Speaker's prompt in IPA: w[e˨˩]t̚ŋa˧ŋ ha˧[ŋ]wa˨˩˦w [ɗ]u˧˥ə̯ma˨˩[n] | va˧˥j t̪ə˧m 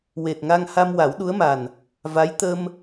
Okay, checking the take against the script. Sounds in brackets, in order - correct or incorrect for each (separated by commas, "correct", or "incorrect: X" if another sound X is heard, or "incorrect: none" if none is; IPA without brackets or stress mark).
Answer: correct, incorrect: m, correct, correct